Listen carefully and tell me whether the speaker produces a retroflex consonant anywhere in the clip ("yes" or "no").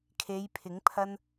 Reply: no